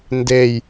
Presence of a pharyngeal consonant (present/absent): absent